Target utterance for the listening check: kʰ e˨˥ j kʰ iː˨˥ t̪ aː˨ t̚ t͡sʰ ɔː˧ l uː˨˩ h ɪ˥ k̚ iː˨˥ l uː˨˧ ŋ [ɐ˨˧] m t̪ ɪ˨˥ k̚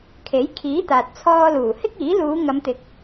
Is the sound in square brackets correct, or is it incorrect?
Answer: correct